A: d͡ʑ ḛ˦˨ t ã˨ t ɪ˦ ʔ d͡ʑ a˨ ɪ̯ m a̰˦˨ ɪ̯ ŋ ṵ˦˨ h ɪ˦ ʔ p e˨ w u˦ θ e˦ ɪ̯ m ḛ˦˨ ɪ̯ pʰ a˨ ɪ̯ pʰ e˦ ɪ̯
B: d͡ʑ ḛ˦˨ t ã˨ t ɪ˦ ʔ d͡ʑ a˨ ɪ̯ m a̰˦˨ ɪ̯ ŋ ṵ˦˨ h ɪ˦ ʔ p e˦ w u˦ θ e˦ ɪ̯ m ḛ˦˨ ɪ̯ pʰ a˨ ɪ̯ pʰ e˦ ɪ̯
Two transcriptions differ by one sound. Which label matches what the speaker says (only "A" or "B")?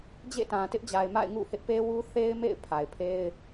B